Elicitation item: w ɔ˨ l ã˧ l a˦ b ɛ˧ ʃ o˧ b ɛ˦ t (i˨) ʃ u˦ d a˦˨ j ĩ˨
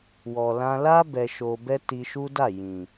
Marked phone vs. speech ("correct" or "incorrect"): incorrect